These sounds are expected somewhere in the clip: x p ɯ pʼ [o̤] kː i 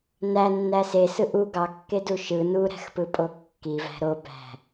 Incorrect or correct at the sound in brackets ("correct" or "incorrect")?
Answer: incorrect